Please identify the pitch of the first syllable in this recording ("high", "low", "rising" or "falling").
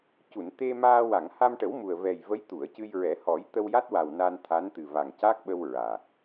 low